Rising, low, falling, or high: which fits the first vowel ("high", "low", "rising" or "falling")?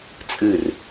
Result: falling